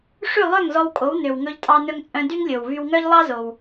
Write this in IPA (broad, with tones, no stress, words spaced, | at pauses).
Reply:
ʂʉ˥˩lˠœ˥˩ŋzɔ˧w kʼo˩˥wnø˩wŋɵ˧ʎ tʼɑ˧nɵ˧ŋt͡sʼœ̃˧ dy˥ŋlʲo˩w vy˧wŋœ˥ʎ lˠɑ˥zo˩w